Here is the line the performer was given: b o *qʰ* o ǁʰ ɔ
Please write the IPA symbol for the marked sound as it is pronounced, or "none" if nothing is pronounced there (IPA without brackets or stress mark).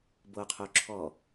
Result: qʰ